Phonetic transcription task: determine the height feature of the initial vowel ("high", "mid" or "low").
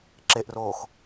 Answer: mid